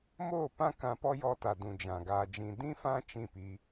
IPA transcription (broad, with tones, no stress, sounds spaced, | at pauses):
m oː˦˨ p ã˦ k ã˧ p ɔ˦ j ɔ˧ t a˨ d ũ˨ d͡ʒ ã˨ ɡ aː˧ d͡ʒ ĩ˧ d ĩ˧ f ã˧ t͡ʃ ĩ˦˨ p iː˧